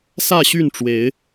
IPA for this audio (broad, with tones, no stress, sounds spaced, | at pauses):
s ä˥˨ ɕ y˥˨ n ʈ͡ʂ w e˨˦ ɪ̯